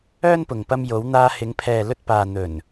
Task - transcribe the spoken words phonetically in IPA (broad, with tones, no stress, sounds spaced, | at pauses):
œː˥ n p ʊ˨ ŋ p ɐ˧ m j o˨˧ w n̪ aː˧ h ɪ˨˧ ŋ pʰ ɛː˨ l ɵ˧ t̚ p aː˨ n̪ ɵ˨˩ n